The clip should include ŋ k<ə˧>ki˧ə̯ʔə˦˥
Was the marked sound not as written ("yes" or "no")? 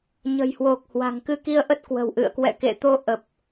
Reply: yes